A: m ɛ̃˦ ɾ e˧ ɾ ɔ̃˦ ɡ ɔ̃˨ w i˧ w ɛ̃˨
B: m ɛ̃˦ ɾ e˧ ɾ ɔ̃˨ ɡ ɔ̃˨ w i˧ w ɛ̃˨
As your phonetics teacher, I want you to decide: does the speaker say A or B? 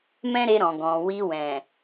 B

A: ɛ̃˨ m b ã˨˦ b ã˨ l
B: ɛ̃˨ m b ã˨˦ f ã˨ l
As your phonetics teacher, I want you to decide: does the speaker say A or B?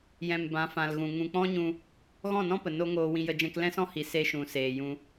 B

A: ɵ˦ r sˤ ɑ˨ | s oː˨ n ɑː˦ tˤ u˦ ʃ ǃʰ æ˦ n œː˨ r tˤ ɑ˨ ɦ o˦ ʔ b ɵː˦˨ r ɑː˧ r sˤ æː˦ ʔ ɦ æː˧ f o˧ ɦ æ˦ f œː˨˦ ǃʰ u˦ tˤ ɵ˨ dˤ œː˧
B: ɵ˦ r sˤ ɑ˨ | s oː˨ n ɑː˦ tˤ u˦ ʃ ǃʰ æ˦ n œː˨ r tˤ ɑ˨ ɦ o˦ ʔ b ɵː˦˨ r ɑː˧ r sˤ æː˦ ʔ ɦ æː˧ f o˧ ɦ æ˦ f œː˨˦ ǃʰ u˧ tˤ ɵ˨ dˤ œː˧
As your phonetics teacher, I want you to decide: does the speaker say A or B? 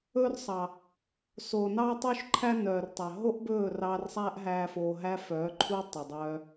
A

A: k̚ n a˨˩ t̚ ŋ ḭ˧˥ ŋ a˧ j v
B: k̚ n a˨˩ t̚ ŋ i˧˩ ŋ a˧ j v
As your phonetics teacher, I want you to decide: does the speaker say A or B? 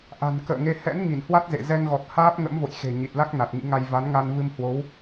A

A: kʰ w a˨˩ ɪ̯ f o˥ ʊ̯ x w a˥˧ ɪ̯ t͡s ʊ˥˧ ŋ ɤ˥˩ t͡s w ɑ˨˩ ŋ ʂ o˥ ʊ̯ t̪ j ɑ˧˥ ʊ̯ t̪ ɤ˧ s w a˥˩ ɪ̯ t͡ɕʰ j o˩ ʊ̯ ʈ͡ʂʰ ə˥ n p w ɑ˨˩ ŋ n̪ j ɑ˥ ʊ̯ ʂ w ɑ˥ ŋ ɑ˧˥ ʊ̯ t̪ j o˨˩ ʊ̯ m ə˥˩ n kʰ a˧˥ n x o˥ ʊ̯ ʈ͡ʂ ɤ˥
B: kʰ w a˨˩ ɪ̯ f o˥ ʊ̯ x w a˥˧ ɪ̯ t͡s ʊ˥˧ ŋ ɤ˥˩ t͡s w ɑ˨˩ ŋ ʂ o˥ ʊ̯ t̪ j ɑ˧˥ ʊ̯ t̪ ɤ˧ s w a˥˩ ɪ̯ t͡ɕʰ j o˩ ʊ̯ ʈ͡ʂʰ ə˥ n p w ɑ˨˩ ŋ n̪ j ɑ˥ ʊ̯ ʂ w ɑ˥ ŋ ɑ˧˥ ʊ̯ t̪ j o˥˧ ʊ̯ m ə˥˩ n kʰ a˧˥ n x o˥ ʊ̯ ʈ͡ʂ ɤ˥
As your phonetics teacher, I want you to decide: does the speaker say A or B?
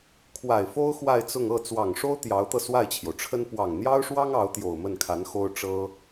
A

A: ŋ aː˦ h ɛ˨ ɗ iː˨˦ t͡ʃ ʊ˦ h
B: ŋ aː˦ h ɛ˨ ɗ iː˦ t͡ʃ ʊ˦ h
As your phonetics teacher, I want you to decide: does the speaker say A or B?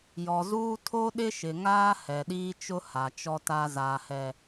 B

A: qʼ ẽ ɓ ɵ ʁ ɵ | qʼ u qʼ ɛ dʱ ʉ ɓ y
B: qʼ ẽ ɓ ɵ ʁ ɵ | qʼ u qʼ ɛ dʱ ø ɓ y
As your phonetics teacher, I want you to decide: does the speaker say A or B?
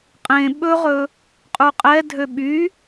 B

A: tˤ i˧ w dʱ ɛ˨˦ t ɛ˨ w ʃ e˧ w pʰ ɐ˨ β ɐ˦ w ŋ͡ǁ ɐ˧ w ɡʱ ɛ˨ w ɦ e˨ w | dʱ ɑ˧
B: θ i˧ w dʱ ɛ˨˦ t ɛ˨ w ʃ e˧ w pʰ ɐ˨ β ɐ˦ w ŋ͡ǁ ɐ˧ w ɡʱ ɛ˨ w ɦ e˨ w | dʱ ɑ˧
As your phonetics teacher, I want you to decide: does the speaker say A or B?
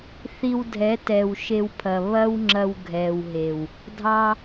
B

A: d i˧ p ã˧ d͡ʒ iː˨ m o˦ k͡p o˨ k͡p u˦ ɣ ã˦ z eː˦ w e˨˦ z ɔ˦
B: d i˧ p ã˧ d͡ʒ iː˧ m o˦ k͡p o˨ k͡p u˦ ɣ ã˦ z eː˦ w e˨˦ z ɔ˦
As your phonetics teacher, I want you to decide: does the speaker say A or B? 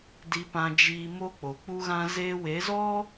B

